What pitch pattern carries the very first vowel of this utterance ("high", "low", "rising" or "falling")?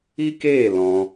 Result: high